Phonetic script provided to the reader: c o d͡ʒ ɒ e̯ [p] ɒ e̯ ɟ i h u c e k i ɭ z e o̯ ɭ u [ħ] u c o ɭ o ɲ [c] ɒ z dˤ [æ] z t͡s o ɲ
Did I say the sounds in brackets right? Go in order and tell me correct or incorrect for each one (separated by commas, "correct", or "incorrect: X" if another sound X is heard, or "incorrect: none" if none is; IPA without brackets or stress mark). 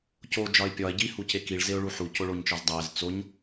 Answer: incorrect: pʲ, correct, incorrect: t͡ʃ, correct